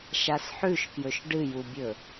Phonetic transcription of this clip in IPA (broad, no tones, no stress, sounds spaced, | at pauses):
ʃ a s ħ ʉ ʃ k j ɵ ʃ ɖ ɨ j u bʲ ɵ